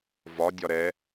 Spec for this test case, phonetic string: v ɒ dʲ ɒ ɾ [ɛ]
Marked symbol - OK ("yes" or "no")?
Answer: yes